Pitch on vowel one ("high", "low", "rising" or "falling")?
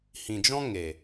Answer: low